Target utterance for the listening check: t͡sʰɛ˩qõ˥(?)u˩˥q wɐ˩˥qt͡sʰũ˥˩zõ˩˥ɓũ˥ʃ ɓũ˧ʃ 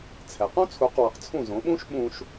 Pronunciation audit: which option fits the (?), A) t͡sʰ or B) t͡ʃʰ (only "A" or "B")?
A